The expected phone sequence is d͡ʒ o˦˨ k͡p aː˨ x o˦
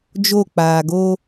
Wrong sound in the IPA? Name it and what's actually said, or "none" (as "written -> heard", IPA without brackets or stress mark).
x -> ɡ